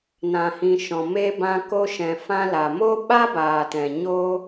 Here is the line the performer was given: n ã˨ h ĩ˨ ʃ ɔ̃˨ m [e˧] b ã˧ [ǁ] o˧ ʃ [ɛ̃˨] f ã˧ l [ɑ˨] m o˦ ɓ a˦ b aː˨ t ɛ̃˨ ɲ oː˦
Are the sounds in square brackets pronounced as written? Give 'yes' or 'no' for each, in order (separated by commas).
yes, no, yes, no